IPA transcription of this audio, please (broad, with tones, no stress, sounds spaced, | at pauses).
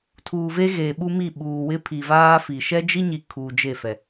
tʰ uː˨ v e˦ ɣ eː˨ ɓ u˦ m i˦˨ ɓ uː˨ w ɪ˦ pʰ i˨ v aː˦ f i˨ ʃ ɛ˦ d͡ʒ i˦ ɲ i˨ kʰ u˨ d͡ʒ e˦˨ f ɛ˨